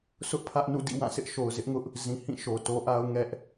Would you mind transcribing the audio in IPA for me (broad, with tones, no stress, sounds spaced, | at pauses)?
sʰ ʊ˦ ʔ pʰ ä˦ ʔ n ṵ˦˨ d ḭ˦˨ w ã˦˨ sʰ ɪ˦ ʔ ʃ o˨ ʊ̯ z ɪ˦ ʔ ŋ ʊ˦ ʔ | z ĩ˨ h ĩ˦˨ ʃ o˨ t o˦ ʔ a˦ ʊ̯ ŋ ɛ˦ ʔ